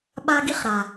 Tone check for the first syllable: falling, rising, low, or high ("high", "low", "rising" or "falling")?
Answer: high